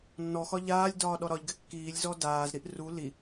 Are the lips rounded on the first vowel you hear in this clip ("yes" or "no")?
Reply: yes